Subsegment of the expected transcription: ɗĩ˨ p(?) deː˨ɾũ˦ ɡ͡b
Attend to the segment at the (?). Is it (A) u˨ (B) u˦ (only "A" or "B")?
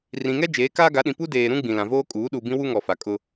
B